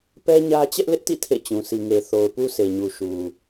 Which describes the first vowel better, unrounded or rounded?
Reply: unrounded